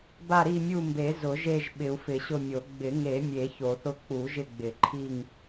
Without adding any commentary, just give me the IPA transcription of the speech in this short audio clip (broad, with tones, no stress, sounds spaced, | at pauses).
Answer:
b a˦˨ ɾ i˦˨ mʲ u˦˨ m b e˨˩˦ z ʊ˨˩˦ ʒ e˦˨ ʒ ɓ ɪ˨˩˦ u̯ f ɪ˨˩˦ ɕ ʊ˦˨ mʲ o˨˩˦ ɡ͡b ɪ˨˩˦ ŋ e˨˩˦ mʲ e˨˩˦ ç o˨˩˦ θ ʊ˦˨ k͡p u˨˩˦ ʒ ɪ˦˨ ɡ͡b ɪ˨˩˦ ǃʰ i˦˨ ŋ